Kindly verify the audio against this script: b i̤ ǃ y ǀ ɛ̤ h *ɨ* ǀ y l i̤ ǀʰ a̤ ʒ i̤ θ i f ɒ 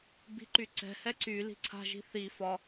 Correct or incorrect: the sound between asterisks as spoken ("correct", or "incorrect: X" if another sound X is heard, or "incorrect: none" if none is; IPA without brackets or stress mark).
incorrect: ɛ